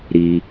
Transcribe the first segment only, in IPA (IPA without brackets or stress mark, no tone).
ɾ